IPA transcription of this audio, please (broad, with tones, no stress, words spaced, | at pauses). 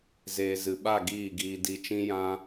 zeː˨zɨ˨ɓa˦˨ ɡiː˦˨ɡiː˧ di˧ t͡ʃĩ˦jã˦